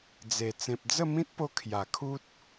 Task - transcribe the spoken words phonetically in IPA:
d͡z e˨˩ t͡s ẽ˨ p̚ d͡z ə˥˧ m ĩ˦ t̚ p o˧ kʰ j a˨˩ kʰ u˦ t̚

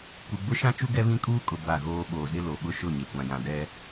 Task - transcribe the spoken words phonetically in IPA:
kʷ i˨ ɡ͡b ʊ˦ ʃ ã˦ t͡ʃ u˦ ɡ ɛ˦ β ĩ˦ kʼ uː˦ kʼ ʊ˨ b a˦˨ ɣ oː˦ ɓ oː˨ z ɪ˦ l o˨ ɓ ʊ˦ ʃ ʊ˦˨ ɲ e˨ kʷ ã˨ j ã˨ d ɛ˦

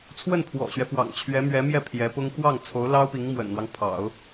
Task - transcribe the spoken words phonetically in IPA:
t͡sʰ w ə˥˩ n pʰ w ɔ̰˨˩ ɕ ɥ ɛ˦ f w ɑ̰˨˩ ŋ t͡ɕʰ ɥ ɛ˧˥ m ɥ ɛ˧˥ m j ɛ˥˩ pʰ j ɛ˧˥ p ʊ˥ ŋ x w ɑ˥˩ ŋ t͡sʰ o˧˥ ʊ̯ l ɑ˥ ʊ̯ p i˧˥ ŋ m w ə̰˨˩ n n̪ w ɑ˦ ŋ pʰ ɑ̰˨˩˦ ʊ̯

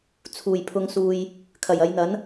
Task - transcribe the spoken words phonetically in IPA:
t͡sʰ uː˨˩ j pʰ ʊ˨˧ ŋ s uː˨ j | kʰ ɐ˨˩ j ɐ˨˧ j n̪ ɐ˨˥ n

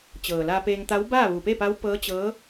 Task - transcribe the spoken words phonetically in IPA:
t͡ɕ ɤː˩ l a˧ p eː˧ ŋ t̪ a˧˥ w b aː˥˨ ʋ u˩ p e˥˨ p a˧˥ w p ɤː˧˥ t͡ɕ ɤː˧˥

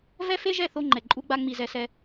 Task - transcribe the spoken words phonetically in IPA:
v ɛ˦ f e˦ ʒ ɛ˦˨ θ o˦ ŋ͡ǃ ɛ˨ ǃʼ u˦ ɡ͡b a˦ ŋ͡m i˨ z ɛ˨ s ɛ˦

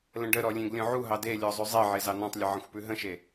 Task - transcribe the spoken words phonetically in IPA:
l ə̃ ɖ ə ɾ ɔ lʲ ẽ ɡ lʲ ɔ̃ ʕ u ɦ ɑ d e lʲ ɔ zˤ ʉ zˤ e ʕ e z ɑ n ɔ̃ tˤ lʲ ə ʕ ə̃ xʷ p ʉ ɦ ə̃ ʃ e

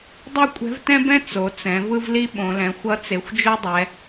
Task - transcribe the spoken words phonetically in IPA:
dˤ ɛ˥ kʷʼ ɛ̤˧˥ v t ɛ̃˥ b ɛ̃˥ t͡s o˩˧ t͡s ɛ̃˩˧ v ɯ˥ v l i˥ ɓ õ˩˧ l ɛ̃˩˧ xʷ ʌ˧˥ t͡s e˩˧ xʷ d͡ʒ o˥ dˤ ɛ˩˧

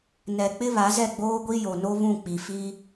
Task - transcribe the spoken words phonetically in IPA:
n ɛ˨ k͡p ɪ˦ β a˨˦ z ɛ˦˨ ɡ͡b oː˦ ɡʷ i˦ j o˨ n o˦ β ũ˦˨ k͡p i˨ f i˦

